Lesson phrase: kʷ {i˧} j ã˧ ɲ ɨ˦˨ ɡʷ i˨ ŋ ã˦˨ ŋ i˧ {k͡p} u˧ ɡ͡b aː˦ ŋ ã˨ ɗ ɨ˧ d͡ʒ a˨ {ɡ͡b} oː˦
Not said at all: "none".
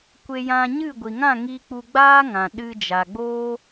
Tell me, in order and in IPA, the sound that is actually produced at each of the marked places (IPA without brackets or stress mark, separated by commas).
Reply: e˧, k͡p, ɡ͡b